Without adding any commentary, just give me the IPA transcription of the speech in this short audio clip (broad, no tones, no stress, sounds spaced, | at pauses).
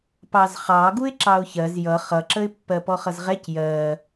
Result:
p ɑ z χ ɑ ɡ u ɪ̯ ǁ ɑ ʊ̯ ç ɜ z j ʌ χ ʌ ǁ ə ɪ̯ pː ɜ p ɔ χ ʌ z ʁ ɛ c j ɜ